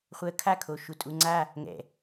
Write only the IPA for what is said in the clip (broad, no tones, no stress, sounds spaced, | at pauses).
χʷ əː kʰ a kʰ o ʃ u tʼ u ŋ͡ǀ a | ŋ ɛ̰